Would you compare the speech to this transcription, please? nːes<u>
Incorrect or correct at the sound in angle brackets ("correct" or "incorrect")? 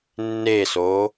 incorrect